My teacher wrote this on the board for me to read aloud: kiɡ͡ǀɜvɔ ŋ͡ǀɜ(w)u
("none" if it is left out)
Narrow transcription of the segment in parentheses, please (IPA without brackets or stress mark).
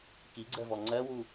w